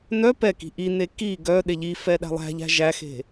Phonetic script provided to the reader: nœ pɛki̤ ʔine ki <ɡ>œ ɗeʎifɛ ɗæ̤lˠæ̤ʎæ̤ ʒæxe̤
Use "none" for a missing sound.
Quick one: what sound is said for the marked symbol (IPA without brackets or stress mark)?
ɡ